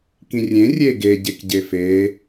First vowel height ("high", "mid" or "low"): high